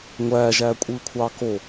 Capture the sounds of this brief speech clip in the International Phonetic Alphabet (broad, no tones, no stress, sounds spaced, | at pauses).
ŋʷ æː ʒ æː kʷʼ ɯː kʷʰ ɑː k o